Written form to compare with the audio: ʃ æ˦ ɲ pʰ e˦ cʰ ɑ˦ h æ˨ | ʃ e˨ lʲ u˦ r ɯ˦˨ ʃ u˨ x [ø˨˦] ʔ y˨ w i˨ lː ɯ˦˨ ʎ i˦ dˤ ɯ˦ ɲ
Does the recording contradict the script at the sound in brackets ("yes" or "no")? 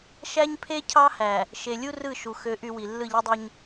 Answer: no